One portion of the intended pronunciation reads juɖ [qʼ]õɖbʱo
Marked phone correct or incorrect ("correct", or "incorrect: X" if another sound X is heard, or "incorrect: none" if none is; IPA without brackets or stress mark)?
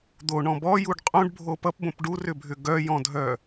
correct